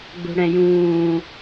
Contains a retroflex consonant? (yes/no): yes